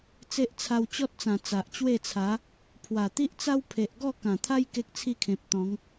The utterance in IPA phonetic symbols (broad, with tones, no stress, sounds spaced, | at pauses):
t͡s e˦ ʔ t͡sʰ a˧ w t͡ɕ ɔ˦ t̚ t͡s ã˨˩ t͡s a˨ ʔ t͡ɕ w e˥˧ t͡sʰ a˨˦ | pʰ w a˨˩ t̪ i˦ ʔ t͡s a˦ w pʰ e˨ ʔ ɡ ɔ˥˧ k ã˨˩ t̪ʰ a˦ j k e˦ k̚ t͡sʰ i˥˧ kʰ ẽ˨ p̚ t̪ ɔ̃˨˦ ŋ